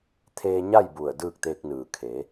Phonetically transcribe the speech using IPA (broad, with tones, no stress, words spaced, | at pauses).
t̪ʰeː˧ɲa˥˨j bu˧˩ə̯dɯː˥˨k̚t̪eː˧k̚nɯː˩ kʰe˩˧